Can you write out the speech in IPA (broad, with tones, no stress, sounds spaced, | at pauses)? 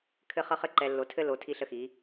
kʰ ɘ˦ χ ʌ˦ χ ɘ˦ ǃ ɛ˨ lː o˨ tʰ ɘ˦ l o˨ tʰ i˦ ɬ ə˦ x i˨˦